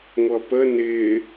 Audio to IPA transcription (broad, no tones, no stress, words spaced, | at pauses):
ŋʷʌpə nɪː